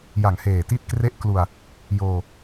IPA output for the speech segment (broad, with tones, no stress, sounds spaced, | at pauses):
j a˨˩ ŋ h eː˨˩ t i˦˥ t̚ k r e˦˥ ʔ k l u˧ a̯ | j oː˧